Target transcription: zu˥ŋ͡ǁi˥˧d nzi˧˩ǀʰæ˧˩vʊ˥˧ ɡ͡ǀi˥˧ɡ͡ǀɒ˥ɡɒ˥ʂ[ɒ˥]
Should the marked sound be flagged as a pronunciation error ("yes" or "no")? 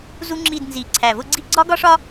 no